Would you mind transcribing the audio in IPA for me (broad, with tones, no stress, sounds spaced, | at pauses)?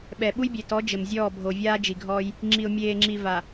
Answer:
ɓ ɛ˨ ɓ u˦ j bʲ e˨ t ɔ˨˦ d͡ʒ ɘ˨ m zʲ ɔː˦˨ bʱ o˨ vʲ aː˦ d͡ʒ i˨ ɡʱ ɔː˦ j | ŋ͡ǁ i˨ ʊ̯ mʲ eː˨ ŋ͡ǁ i˨ v a˨